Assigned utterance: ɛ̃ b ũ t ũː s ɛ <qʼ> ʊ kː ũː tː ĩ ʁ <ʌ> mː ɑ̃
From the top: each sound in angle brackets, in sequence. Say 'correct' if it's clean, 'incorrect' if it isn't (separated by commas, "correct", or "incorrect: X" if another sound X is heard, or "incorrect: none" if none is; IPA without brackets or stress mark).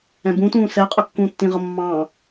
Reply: correct, correct